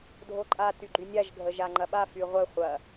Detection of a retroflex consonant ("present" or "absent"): absent